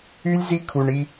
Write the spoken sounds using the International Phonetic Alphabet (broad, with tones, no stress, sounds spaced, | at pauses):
y˧ lʲ z i˧ kʰ u˩ ɳ i˧